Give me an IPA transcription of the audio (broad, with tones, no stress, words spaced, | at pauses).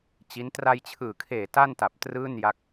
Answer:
t͡ɕi˦˥n tra˧jt͡ɕʰɯː˨˩kʰeː˨˩ ta˥˩nta˨˩p̚ trɯː˥˩nja˦˥k̚